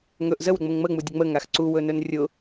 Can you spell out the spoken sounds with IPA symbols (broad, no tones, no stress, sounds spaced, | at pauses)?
ŋ ɵ ʔ z ə w ɾ ʊ ŋ͡m ə ŋ ŋ͡m ə ŋ͡m u dʲ ə ŋ͡m ə ŋ a x ǀ u w ɵ n ɵ n rʲ ʊ